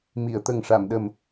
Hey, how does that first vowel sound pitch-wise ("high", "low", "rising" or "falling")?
low